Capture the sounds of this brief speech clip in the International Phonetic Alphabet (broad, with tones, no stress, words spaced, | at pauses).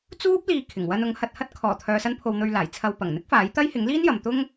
t͡suː˥p̚ liː˧ kʰɪ˨˩ŋwɐ˧n ʊ˨˥ŋhɐ˨t̚hɐ˥t̚ kʰɔː˨˩t̪ʰœː˨sɐ˧npʰo˨w n̪ɵ˧ɥlaː˨˩jt͡sʰɐ˧w pɐ˨˩ŋn̪ɪ˥k̚faː˨˥jt̪ɐ˥j hɪ˨˥ŋliː˥njɐ˨mt̪ʊ˥ŋ